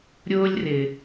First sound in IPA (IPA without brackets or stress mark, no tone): ɾʲ